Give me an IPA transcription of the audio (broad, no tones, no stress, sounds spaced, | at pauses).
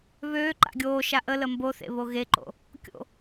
β øː ǃ a̰ ɡʲ oː ʃ a ʔ ə l ə m b o θ ḛ β o ɣ e ǃ o̰ | kʲ o̰